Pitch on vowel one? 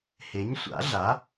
rising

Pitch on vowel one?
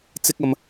high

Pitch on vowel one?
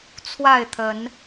falling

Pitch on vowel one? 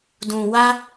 low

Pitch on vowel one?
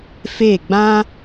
falling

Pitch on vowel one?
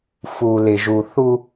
low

